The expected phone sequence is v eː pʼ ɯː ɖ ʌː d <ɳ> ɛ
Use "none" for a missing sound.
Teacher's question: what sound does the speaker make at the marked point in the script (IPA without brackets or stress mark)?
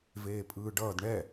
ɳ